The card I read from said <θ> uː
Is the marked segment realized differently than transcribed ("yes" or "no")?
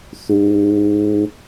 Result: no